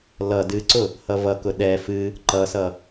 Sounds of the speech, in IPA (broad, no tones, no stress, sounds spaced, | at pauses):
l ʌ d ɨ ǀ ʊ | h ʌ v ʌ k ʊ ɗ ɛ f ɨ | ǃ ʌ s ʌ